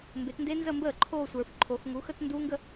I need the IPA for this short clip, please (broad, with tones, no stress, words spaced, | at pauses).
mbe˨˦tnde˦˥nzə˥˧mbəː˥˩ ǃʰo˥˧sʷə˞˨fǃʰo˨˦x ŋu˨˦xə˥˧tnduː˦˥ŋɡə˥˧